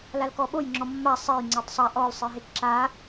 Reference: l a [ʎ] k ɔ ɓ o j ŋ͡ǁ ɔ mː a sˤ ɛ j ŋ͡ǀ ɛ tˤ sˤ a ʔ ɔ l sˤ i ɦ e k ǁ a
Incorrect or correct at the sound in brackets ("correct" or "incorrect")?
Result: incorrect